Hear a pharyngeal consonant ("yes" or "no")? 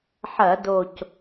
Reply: yes